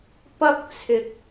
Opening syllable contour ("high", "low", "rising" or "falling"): high